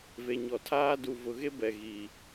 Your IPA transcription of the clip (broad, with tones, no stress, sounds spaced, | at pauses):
v e˨ ɲ ɔ˨ tʰ aː˦ d u˨ v ʊ˨ ɣ e˦ b ɛ˨ ɣ iː˨